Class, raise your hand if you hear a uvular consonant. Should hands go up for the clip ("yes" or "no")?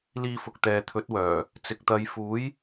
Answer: no